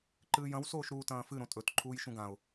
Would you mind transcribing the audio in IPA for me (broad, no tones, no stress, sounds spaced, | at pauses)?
ǃ ɨː j ɐ̃ w s oː ʃ ɾ uː t ɐ̃ː f ɨ ɾ õ tʼ ɵ t ǃʰ uː j ʃ ũ ɡ ã ʊ̯